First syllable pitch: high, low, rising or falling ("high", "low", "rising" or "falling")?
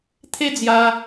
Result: high